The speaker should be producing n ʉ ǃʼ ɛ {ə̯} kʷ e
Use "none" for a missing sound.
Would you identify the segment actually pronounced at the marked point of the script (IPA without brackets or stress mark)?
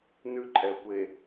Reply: ə̯